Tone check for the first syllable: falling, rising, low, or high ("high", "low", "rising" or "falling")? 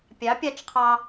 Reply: rising